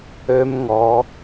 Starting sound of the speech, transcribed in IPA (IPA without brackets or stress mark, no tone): ø